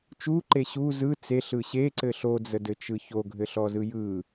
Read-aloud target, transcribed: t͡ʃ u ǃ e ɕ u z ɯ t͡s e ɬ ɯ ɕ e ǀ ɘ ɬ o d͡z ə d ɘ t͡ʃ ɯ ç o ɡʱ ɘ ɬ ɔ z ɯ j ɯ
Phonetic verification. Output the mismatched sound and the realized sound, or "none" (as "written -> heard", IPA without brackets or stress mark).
none